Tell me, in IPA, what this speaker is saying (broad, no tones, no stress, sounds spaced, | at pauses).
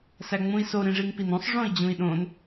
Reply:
s æ ŋ͡m ũ i̯ s o ɾ ĩ ʐ i ŋ p i n õ sˤ ʐ õ i̯ d͡ʑ ũ i̯ ɗ õ n